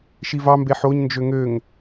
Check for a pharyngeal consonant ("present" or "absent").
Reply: present